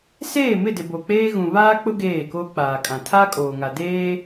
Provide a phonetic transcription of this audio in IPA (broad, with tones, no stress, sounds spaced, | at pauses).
s eː˦˨ m ɪ˦˨ d ɪ˨ b o˨ k͡p eː˦ ɣ ũ˨ β aː˦ k͡p ʊ˦ ɡ eː˦˨ k o˦ k͡p aː˨ kʼ ã˨ tʰ a˦ kʼ oː˨ ŋ a˨ d eː˦